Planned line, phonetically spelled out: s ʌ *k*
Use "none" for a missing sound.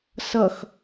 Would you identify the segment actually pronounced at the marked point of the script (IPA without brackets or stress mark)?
x